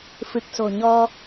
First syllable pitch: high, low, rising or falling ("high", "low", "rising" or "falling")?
low